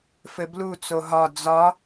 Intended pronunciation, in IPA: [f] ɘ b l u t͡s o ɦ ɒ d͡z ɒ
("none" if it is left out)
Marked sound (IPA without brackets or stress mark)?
f